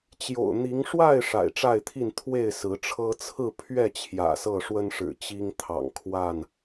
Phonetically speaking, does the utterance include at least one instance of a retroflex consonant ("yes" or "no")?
yes